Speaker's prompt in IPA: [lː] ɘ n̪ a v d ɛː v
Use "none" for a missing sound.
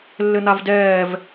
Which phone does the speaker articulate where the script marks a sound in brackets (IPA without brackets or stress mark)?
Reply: lː